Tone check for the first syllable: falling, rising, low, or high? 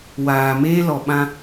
low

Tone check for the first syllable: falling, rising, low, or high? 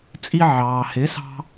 high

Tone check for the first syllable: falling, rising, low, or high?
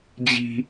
high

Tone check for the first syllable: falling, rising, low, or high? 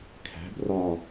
rising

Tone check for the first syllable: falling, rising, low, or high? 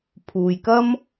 low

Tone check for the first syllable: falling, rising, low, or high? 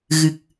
low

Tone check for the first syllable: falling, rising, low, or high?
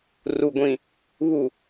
low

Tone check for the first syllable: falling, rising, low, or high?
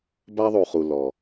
high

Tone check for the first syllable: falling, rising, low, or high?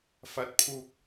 rising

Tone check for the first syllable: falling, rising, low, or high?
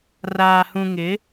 low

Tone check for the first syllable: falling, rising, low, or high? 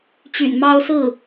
low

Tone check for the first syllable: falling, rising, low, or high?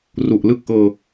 low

